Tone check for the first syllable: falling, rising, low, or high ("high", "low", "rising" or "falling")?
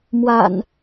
low